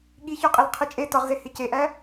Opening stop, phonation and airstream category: implosive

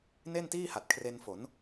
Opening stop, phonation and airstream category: plain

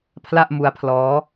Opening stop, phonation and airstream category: aspirated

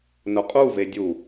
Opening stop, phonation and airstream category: ejective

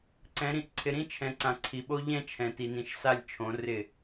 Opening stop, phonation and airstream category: click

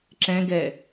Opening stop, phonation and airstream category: click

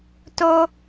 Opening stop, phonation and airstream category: plain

